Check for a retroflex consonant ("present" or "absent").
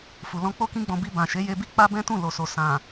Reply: absent